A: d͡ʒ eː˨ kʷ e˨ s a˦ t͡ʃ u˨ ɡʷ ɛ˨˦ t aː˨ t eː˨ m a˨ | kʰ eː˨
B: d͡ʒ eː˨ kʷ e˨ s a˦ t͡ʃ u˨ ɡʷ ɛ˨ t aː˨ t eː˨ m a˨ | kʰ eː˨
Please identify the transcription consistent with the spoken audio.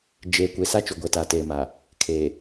A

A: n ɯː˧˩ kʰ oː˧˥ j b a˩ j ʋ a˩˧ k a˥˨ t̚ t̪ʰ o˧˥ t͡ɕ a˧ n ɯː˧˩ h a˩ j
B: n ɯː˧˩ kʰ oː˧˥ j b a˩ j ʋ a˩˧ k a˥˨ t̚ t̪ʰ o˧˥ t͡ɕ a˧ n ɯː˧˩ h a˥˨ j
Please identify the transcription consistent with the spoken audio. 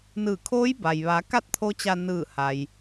A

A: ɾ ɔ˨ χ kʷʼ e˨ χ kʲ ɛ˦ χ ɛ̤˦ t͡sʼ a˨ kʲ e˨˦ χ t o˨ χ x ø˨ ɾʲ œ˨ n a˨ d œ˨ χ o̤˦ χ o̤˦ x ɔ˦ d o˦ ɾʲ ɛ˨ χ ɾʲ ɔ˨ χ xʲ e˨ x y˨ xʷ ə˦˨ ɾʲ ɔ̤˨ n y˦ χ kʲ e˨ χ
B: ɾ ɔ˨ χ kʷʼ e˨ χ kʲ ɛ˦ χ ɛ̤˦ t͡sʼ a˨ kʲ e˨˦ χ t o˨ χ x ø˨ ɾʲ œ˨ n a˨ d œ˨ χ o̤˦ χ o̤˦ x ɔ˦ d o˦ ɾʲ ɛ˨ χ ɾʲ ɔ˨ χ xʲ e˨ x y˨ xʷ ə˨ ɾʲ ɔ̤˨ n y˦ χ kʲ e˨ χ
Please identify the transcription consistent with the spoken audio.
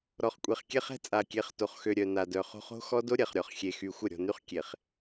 A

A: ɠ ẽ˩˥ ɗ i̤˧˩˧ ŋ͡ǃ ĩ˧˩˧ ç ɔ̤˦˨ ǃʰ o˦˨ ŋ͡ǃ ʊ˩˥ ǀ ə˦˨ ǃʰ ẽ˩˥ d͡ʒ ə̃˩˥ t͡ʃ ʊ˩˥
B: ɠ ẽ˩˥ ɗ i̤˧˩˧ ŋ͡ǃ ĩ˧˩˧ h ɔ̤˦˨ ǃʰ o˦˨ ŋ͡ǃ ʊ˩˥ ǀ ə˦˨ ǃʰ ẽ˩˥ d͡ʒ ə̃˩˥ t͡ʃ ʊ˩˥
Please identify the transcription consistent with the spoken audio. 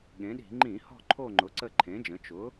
B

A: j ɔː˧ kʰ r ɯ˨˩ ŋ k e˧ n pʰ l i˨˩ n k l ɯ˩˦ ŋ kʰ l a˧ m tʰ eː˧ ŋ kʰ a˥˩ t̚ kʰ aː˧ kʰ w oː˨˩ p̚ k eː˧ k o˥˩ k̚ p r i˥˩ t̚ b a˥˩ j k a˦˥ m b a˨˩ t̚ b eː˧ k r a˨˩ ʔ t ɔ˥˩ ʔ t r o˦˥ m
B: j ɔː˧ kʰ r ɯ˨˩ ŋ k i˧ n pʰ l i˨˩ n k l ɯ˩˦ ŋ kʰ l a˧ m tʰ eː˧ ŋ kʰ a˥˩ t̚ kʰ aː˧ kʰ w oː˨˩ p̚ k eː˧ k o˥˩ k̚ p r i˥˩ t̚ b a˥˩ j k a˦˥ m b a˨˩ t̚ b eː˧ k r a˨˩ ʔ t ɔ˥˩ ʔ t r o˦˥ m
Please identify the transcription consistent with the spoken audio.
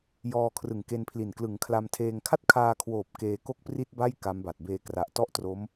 A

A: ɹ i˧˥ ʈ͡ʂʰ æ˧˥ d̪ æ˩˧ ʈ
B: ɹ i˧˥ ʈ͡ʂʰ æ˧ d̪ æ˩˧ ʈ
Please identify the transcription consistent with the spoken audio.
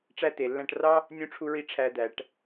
B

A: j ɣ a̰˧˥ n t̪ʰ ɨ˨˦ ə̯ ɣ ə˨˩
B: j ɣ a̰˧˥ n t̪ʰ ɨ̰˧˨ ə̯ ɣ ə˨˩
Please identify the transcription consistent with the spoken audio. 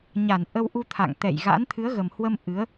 A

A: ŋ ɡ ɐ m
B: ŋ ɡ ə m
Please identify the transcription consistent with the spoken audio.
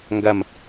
A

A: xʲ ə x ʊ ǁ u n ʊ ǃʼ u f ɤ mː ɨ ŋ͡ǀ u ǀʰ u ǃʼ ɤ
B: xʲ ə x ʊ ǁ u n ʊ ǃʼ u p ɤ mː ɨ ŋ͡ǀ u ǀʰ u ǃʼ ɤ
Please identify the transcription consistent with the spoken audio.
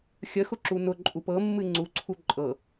B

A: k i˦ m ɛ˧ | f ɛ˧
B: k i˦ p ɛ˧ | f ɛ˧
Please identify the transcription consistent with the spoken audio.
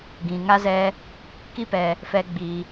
B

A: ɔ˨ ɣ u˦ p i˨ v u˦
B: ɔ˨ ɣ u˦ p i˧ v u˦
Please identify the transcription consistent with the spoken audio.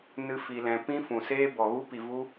A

